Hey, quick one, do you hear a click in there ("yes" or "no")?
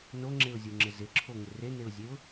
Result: yes